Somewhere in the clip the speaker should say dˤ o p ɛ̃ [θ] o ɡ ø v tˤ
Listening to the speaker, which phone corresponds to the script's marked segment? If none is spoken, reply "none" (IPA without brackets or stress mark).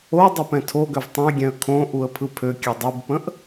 tʰ